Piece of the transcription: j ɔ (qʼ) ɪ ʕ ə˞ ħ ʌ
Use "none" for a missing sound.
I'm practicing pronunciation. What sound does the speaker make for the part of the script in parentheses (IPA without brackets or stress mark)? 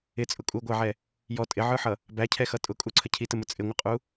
tʼ